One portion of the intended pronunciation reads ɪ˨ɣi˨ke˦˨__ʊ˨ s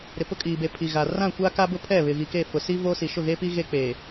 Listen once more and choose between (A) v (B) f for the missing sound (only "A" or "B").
B